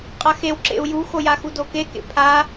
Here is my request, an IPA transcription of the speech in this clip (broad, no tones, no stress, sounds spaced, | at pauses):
qʼ a x e w ǁ ḛ u̯ j u x o j a x u d o k e k ḛ pʰ a